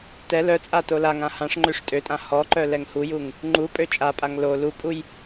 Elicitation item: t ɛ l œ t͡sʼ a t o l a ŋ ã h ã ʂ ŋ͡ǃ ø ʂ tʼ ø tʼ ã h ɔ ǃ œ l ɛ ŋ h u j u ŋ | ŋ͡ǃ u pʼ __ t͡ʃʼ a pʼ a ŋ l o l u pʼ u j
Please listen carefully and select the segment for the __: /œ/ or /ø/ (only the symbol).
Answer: ø